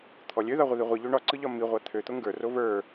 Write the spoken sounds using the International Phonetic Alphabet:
t̪ʰ ɔ lʲ ø ð a ʁʷ ə ð i ʁʷ i ʎ ø ɳ ɒ ǀ ɯ ʎ ɒ m i ʁʷ a t̪ʰ ø t̪ o ŋ ɡ ə˞ r o v ə˞

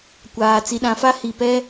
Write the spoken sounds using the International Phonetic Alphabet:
kʷ aː˨ t͡s i˨ ɗ ã˨ f a˦ h i˨ p ɛ˦

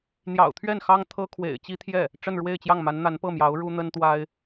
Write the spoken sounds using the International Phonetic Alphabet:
n̪ j ɑ̰˨˩ ʊ̯ t̪ʰ ɥ ɛ˥˩ n x ɑ˥ ŋ t̪ʰ ɤ˥ kʰ w ḛ˨˩ ɪ̯ t͡ɕ i˥ t̪ʰ j ɛ˥˩ | ʈ͡ʂ ə˥˧ n ɻ w e˥˧ ɪ̯ t͡ɕ j ɑ˥˩ ŋ m a˧˥ n n̪ a˧˥ n p ɤ˥˩ m j ɑ˧˥ ʊ̯ ɻ u˥ n̪ ə˥ n t̪ w a˥ ɪ̯

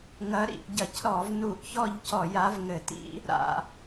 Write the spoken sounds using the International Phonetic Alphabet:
ŋ ɐ˧˥ ɾ ḭ˧˩˧ ʔ ɟ ɐ˧˩˧ c ɾ ɔ˧˩˧ v n u˧˩˧ ʔ ç ɔ˦˨ ʎ c ɔ˧˩˧ j a˧˥ v ŋ ɘ˧˩˧ t ḭ˧˥ | ɾ a̰˧˩˧

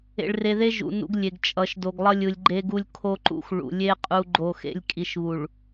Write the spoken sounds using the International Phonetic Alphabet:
ḛ˨ ɭ r e˨ ð e˦ ʒ ṵ˨ n ṵ˦ ɡ lʲ e˨ ɡ t͡ʃʼ ʌ˨˦ ʃ d o˨ ɡ lˠ ʌ˦ lʲ ɯ˨ lʲ ɡ͡ǃ e˦ ɡ u˦ lʲ kʰ o˦ ǃ ṵ˦ x ɭ ṵ˨ lʲ e˦ qʼ u˦ ɡ͡ǃ o˦˨ x ḛ˦ lʲ kʼ i˨ ʃ β u˨ ɭ

